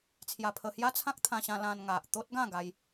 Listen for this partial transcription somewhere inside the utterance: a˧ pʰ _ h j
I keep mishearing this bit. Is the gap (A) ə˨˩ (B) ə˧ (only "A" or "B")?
B